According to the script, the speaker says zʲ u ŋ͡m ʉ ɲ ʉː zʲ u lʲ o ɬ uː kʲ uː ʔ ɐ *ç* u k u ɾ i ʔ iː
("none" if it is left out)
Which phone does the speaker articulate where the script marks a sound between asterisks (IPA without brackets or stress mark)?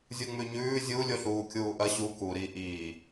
ɕ